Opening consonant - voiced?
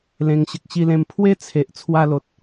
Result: yes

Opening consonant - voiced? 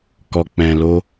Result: no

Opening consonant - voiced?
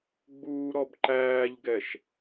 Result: yes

